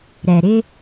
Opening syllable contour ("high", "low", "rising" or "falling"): low